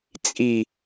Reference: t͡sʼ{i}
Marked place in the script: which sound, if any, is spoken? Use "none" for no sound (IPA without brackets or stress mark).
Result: i